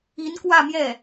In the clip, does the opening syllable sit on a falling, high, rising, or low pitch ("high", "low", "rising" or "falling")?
rising